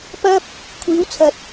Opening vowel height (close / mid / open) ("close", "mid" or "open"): open